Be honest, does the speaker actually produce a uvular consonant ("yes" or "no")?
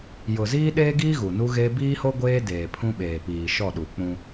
no